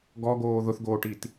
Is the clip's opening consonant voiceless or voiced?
voiced